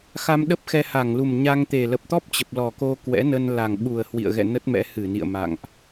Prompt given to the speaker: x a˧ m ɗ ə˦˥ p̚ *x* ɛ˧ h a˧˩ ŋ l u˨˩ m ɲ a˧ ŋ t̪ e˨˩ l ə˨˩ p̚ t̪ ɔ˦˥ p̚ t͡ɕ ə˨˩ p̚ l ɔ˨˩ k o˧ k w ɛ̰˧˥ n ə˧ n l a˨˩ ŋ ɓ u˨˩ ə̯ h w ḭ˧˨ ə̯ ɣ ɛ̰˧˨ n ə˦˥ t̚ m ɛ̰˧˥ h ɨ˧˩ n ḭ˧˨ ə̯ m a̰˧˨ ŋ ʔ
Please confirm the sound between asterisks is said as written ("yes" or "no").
yes